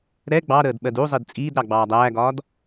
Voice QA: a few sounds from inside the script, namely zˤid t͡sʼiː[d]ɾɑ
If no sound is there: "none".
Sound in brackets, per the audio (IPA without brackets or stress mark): d